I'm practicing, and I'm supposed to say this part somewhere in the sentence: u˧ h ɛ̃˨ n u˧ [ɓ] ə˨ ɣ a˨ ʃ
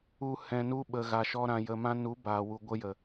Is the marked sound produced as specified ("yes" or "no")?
yes